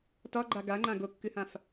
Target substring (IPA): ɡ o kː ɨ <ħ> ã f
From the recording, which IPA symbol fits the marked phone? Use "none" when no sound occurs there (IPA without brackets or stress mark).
h